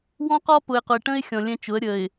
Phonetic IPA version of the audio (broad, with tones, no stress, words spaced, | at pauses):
wɔ̃˦qɔ˦pʊ˨ɪ̯qʊ˨ɪ̯ ʈə̃˦ɪ̯xʲɔ̃˨ lʲɛ̃˦t͡ʃʊ˨˦ə̯ ɾʲə˨ɪ̯